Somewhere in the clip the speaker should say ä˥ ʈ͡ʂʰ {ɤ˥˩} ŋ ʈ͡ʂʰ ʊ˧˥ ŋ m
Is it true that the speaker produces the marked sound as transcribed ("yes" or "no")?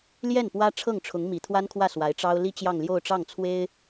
yes